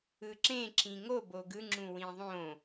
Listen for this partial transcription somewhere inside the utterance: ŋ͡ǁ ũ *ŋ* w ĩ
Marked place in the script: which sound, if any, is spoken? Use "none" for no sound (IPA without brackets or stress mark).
none